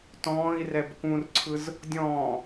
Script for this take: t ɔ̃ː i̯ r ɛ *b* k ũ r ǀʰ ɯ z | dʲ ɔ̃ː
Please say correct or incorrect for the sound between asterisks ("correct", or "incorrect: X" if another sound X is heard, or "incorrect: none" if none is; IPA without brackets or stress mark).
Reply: correct